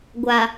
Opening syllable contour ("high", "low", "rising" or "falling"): low